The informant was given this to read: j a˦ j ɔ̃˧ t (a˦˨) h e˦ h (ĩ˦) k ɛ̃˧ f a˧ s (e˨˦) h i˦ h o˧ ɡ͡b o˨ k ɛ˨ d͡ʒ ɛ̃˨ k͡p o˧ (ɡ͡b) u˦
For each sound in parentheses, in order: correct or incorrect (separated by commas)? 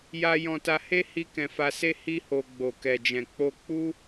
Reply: incorrect, incorrect, incorrect, incorrect